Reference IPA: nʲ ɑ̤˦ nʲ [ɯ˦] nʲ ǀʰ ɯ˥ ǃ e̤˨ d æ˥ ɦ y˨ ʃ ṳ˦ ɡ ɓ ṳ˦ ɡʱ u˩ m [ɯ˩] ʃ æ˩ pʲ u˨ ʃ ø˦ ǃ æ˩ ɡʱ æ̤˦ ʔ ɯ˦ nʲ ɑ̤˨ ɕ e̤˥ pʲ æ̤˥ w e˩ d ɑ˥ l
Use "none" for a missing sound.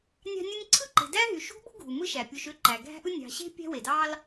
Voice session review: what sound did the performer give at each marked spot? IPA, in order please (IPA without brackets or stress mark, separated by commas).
ɯ˦, ɯ˦